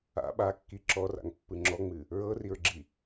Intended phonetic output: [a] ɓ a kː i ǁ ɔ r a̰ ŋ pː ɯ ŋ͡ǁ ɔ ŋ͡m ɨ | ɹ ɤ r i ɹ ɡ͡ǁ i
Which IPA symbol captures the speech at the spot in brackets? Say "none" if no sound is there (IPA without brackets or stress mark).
a̰